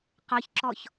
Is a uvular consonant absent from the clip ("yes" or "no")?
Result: no